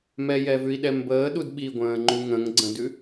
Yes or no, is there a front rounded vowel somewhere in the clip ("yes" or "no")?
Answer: no